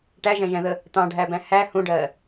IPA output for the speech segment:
ʈæʒæ̃ʒæ̃ðə | t̪ɑ̃ɖʱæbæ̃ hæ hũɖɜ

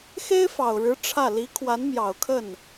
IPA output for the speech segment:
xe˥ɪ̯fɑ˨˩ʊ̯ɻɻ̩˧˥ ʈ͡ʂʰä˥˩ li˧˥ kʰwa˧˥nmjɑ˨˩ʊ̯kʰə˥˩n

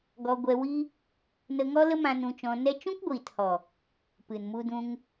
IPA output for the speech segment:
ɡɔ˧ɡʷɛ˧wiː˦ | nə˧ŋɔ˦lə˦mã˧ nũ˧t͡ʃɔ̃˧nɛ˦ t͡ʃũ˦kɡʷiː˨thɔ˨ | pɨ˨nmu˧dũ˧ŋ

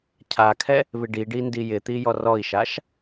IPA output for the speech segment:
cʰakʰɛ | βɪɖiɖi ndijɪt̪i jɔrɔi̯ʃaʃ

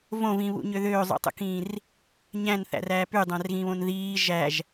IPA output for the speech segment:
võvĩβṵɲø ðøːzˤṵtˤṵkĩːr | ɲæ̃nθæ̰ræː pydˤæ̃rɣĩβõn ðiː ʒæʒ

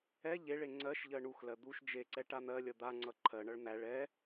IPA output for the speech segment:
ɛ ʎeɭe ŋ͡ǀɜʃʎɜ ɳuxlɜ d̪uʃ d͡ʒeǀɛ ʈan̪ɜlʲʌ d̪aŋ͡ǀʌ ǃʰɜɳʌɭ n̪æɭ ɛ

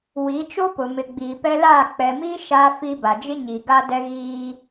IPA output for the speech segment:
wi˨˦t͡ʃo˦pʊ˨mɪ˨ ɡ͡biː˨pɛ˦laː˦˨ k͡pɛ˨mi˦ ʃa˦fi˦ ba˨d͡ʒɪ˦ ɲi˨ɡa˦dɛ˦ ɣiː˦

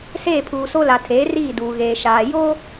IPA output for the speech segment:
seː˦˨pʰuː˨so˦la˨ tʰeː˨˦riː˦˨duː˨ ɣeː˨ ʃaː˨ joː˦

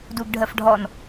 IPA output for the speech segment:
duɡɖʱɜfɖʱɔn

